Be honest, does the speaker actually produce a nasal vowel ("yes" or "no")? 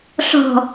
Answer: no